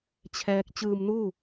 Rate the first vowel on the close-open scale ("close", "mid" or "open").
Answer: mid